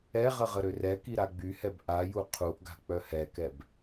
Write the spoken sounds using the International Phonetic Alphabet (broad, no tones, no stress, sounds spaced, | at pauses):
ɛ ʁ ə ʁ ə ɾ ø r ɛ k i ɾ a ɡ͡b y h ɛ b ʔ a j u qʰ u ʔ ɡ a̤ k͡p œ h ɛ k ɛ b